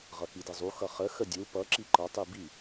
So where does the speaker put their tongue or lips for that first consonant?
uvula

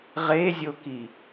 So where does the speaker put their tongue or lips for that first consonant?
uvula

